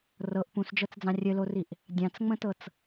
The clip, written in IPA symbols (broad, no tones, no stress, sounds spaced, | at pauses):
r ɤ ʔ p ũ s d͡ʒ ɤ t͡s d͡z ɑ̃ rʲ ɘ l o r i ʔ | dʲ ɑ̃ t͡s ŋ͡m ə̃ t ɤ t͡s